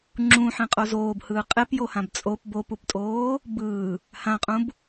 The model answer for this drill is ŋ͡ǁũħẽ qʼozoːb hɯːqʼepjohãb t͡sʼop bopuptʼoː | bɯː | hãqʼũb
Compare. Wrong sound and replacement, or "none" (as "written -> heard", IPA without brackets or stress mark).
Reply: none